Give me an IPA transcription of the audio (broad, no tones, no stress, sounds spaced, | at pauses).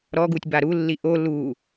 ɾ ɔ ɡ u tʲ b a ɾ u lː i ʔ o l u